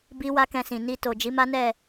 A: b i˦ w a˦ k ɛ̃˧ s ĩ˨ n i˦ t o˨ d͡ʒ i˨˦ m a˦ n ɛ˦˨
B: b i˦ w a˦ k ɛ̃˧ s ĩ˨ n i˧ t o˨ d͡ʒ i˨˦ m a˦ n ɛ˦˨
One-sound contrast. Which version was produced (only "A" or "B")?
B